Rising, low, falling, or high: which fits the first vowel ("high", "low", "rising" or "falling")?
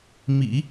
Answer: low